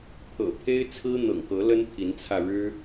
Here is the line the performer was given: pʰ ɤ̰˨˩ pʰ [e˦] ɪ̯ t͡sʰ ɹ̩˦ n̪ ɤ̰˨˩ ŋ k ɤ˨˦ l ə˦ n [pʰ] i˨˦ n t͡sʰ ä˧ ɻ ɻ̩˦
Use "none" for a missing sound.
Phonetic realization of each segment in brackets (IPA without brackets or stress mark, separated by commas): e˦, t̪ʰ